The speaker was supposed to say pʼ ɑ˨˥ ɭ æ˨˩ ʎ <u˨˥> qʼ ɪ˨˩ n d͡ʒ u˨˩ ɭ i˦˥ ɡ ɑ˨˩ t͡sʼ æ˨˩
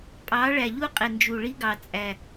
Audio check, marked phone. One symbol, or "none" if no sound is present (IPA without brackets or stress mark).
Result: u˦˥